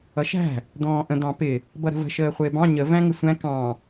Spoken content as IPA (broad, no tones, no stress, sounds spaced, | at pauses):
ʌ ʃ æ̤ | d̪ ɔ̃ː ʔ ə̃ d̪ ɑ̃ p ɪ | b ʌ ɾ ə̤ v ə̤ ʃ əː χʷ ɪː b ɑ̃ ɲ ə v æ̃ ŋ ɪ sʷ æ̃ k ɑ̃